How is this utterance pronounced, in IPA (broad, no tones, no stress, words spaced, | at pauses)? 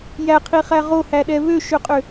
jæqʰiχæ ʁohæɗɛ βøʃøqʼø